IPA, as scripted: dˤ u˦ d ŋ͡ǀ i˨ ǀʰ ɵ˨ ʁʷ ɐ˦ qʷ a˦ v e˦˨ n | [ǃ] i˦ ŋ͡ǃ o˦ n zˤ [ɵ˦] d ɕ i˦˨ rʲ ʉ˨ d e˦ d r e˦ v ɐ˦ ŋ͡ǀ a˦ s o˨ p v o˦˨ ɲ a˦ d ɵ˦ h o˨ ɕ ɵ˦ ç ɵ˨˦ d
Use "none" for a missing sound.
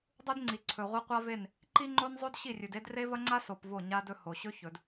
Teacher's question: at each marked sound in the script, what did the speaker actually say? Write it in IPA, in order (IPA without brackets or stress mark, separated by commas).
ǃ, o˦